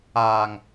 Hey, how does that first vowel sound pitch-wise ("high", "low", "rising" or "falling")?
low